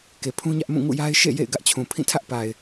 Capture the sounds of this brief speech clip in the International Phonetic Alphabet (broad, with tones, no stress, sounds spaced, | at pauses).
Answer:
k e˨ pʰ ũ˦ ɲ ä˦ ʔ m ũ˦˨ ŋ ṵ˦˨ j a˦ ɪ̯ ʃ ḛ˦˨ j ḛ˦˨ ɪ̯ ɡ ä˦ ʔ t͡ɕʰ ũ˨ pʰ ĩ˦˨ tʰ ä˦ ʔ p a˨ ɪ̯